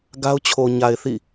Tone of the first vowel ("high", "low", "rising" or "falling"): high